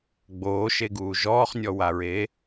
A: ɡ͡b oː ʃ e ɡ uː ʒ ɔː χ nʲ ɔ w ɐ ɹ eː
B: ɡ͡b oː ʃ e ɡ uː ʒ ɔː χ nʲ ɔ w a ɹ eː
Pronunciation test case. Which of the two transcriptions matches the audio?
B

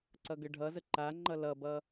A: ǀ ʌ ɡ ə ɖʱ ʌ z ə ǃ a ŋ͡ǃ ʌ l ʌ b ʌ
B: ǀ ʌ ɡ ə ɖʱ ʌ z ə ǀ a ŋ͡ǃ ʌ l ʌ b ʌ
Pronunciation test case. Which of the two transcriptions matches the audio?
A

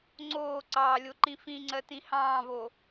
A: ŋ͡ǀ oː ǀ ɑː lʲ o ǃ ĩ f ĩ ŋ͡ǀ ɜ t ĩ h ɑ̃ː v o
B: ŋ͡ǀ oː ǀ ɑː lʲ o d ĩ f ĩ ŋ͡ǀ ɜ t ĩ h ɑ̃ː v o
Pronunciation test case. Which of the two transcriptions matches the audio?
A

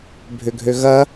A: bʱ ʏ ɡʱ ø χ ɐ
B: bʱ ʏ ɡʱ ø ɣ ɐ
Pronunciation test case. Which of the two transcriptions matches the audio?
B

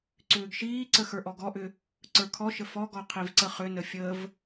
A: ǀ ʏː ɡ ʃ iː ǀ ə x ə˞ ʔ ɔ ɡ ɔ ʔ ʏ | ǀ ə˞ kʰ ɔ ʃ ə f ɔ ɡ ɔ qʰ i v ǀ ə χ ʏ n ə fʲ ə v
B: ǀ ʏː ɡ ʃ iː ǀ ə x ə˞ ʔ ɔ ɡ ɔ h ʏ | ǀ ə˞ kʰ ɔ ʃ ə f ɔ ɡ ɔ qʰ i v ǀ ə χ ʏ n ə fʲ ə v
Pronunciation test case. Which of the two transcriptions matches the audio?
A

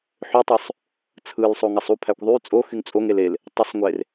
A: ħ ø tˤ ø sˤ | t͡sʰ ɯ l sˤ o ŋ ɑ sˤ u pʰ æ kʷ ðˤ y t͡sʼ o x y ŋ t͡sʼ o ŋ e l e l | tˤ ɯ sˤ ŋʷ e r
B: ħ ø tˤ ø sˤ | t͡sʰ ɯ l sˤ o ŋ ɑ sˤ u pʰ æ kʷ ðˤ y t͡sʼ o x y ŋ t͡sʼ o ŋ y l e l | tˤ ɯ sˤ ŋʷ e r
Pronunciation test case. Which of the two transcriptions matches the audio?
A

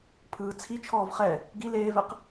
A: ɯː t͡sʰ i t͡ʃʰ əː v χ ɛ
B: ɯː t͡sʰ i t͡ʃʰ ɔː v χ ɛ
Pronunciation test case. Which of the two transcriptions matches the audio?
B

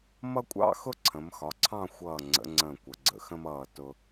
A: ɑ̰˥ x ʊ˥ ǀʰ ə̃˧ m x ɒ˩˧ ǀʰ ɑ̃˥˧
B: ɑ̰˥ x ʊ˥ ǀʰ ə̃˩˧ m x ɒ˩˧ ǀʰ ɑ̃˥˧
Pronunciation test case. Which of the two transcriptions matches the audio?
B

